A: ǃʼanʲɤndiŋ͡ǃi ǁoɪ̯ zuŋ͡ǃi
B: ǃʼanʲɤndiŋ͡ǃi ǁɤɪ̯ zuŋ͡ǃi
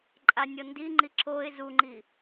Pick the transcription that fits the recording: A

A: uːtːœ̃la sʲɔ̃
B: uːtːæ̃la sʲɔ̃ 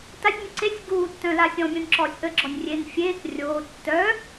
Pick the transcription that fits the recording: A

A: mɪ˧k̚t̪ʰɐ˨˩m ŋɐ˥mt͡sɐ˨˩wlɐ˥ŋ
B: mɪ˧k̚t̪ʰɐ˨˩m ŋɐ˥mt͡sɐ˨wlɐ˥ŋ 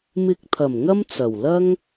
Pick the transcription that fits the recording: A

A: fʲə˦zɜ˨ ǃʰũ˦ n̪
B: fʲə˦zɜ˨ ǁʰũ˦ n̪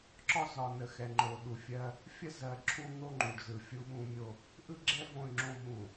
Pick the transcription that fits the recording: B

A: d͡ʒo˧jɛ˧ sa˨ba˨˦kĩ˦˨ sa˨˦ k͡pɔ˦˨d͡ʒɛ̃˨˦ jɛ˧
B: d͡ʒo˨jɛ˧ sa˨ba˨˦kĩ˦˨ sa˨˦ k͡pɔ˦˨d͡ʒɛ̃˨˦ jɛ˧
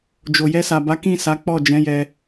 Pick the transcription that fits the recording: B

